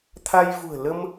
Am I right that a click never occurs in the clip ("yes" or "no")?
yes